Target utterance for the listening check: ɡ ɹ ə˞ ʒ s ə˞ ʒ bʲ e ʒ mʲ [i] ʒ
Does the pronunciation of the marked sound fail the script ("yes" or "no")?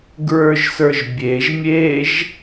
yes